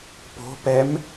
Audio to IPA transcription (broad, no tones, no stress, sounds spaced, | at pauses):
p o̤ p ɛ m